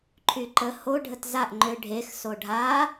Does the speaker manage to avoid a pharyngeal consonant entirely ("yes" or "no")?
yes